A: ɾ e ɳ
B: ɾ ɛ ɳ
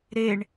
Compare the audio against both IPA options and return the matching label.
A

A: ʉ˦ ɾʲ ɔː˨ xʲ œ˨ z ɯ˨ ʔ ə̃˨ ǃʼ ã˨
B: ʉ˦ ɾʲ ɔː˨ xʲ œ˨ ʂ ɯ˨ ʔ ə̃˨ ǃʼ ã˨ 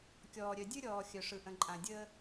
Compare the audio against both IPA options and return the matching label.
B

